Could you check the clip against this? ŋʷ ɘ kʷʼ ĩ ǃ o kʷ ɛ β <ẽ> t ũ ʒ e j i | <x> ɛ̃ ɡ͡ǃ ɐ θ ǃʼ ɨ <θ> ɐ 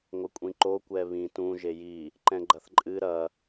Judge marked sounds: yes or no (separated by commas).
no, no, no